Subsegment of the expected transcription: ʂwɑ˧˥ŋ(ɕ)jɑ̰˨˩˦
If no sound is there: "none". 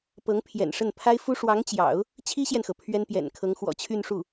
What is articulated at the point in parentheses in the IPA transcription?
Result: t͡ɕ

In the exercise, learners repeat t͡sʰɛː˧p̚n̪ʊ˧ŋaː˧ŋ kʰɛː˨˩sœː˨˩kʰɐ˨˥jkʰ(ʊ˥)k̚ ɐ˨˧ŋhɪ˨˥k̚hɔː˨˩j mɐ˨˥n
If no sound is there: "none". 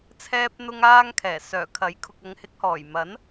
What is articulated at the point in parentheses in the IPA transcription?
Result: ʊ˨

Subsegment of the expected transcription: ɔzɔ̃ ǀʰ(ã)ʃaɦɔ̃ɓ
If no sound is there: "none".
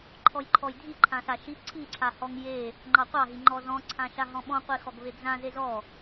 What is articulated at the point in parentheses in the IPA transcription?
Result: ã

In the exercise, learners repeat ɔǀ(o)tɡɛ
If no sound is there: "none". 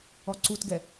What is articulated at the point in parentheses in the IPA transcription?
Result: u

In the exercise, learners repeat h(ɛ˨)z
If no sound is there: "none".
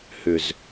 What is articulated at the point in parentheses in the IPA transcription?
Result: ʏ˨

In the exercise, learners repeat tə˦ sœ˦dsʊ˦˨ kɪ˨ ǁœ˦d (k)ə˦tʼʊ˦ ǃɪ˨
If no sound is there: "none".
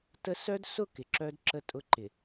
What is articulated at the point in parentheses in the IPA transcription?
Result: ǁ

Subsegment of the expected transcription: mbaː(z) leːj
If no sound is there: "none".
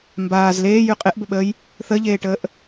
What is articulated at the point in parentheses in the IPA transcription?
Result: z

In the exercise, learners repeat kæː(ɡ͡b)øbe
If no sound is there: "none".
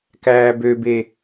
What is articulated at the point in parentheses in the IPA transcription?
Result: b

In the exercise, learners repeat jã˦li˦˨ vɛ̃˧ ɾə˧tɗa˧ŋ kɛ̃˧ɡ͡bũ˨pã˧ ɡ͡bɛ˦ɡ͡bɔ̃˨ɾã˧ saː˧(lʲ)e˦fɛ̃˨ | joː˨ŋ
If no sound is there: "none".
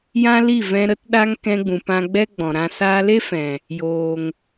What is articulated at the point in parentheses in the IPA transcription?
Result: l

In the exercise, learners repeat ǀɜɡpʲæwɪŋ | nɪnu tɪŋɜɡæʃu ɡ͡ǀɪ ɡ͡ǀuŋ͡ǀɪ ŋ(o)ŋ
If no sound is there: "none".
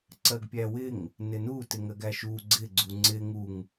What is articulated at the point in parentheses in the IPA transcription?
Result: u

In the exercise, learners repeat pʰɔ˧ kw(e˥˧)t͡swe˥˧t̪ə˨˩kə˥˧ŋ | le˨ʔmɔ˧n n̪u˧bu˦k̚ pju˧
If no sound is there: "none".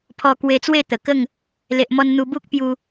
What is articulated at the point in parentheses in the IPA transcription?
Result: e˧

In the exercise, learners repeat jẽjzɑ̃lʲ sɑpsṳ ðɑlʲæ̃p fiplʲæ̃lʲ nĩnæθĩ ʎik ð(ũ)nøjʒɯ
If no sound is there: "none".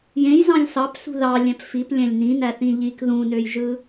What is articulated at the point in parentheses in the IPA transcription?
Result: ũ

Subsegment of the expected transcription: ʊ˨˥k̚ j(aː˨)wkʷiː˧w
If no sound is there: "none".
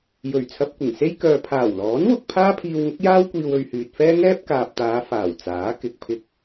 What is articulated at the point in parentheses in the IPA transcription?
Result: aː˥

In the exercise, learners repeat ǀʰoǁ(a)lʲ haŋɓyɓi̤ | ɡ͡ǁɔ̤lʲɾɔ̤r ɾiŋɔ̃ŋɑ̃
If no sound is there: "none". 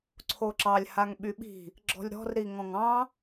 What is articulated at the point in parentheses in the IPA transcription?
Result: ɑ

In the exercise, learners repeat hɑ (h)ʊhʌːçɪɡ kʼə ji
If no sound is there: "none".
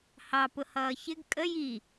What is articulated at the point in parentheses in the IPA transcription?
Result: p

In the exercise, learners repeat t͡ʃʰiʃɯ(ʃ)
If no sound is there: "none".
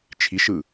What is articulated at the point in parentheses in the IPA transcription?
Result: none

